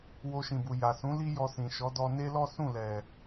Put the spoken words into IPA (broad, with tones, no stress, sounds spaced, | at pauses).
w o˧ ʃ ĩ˨ b u˨ j a˨ s ũ˨˦ l i˦ j ɔ˧ s ĩ˨ ʃ ɔ˨˦ d ɔ˧ n e˦ l ɔ˦ s ũ˦˨ l ɛ˨